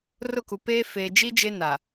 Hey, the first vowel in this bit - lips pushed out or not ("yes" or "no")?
yes